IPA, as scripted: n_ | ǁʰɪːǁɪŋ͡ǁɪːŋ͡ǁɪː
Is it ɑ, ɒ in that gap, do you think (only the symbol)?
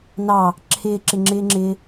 ɑ